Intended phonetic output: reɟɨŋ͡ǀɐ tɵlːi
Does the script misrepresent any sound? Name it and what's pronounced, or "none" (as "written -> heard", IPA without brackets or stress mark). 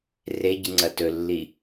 none